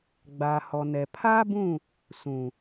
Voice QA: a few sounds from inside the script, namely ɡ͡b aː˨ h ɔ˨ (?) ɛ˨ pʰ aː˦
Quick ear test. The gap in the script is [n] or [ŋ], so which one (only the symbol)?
n